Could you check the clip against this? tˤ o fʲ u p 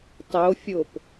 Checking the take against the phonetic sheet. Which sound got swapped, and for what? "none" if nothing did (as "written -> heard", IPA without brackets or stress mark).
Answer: u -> o